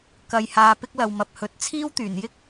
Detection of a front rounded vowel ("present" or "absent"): present